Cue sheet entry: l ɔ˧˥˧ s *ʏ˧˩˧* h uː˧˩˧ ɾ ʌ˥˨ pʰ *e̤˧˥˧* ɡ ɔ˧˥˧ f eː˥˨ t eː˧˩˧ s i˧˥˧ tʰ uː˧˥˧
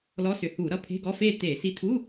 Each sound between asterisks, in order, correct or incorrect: correct, correct

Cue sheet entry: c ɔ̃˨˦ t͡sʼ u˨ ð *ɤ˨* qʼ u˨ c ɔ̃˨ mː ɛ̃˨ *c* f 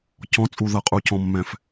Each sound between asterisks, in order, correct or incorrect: correct, incorrect

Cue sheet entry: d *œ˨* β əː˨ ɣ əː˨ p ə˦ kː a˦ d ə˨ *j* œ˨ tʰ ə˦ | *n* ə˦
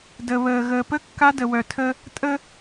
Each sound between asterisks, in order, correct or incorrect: incorrect, incorrect, incorrect

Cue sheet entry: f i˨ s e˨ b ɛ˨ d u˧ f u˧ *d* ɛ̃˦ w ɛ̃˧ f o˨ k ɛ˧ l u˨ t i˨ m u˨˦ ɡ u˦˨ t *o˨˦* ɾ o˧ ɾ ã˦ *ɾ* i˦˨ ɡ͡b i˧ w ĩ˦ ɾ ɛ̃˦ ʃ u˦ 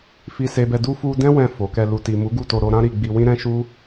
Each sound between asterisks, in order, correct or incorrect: correct, incorrect, correct

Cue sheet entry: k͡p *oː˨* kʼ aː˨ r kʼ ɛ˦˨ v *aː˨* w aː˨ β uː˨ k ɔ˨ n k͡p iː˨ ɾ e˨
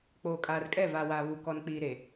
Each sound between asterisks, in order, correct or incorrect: correct, correct

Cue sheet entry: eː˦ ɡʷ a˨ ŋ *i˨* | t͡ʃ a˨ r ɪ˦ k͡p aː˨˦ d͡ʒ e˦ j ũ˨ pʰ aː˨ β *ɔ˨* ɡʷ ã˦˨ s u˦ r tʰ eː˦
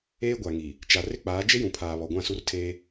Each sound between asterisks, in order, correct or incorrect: correct, correct

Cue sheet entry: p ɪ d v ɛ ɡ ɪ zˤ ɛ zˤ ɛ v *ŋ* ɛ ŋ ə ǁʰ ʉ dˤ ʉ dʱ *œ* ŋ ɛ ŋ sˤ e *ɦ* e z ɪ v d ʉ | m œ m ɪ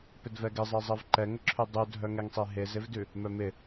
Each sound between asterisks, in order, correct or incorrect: incorrect, correct, correct

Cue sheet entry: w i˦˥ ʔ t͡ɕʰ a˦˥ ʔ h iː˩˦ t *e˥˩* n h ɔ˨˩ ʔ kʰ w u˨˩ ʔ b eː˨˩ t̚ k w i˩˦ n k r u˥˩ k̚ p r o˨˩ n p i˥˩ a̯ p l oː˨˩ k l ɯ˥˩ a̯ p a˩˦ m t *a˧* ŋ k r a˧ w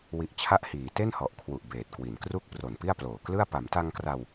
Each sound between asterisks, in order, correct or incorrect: correct, correct

